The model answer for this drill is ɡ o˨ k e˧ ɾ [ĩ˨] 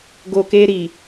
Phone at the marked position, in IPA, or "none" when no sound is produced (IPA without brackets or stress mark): i˨